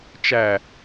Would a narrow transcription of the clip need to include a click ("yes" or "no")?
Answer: no